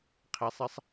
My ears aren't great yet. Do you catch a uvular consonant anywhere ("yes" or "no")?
yes